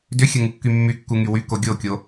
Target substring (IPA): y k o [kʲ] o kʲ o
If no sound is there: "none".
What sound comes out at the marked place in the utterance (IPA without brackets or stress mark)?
ɡʲ